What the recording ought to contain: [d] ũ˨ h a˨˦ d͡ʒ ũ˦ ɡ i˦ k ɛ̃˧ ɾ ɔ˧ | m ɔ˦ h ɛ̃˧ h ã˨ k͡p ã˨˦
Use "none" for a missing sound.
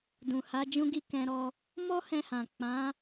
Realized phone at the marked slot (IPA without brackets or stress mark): d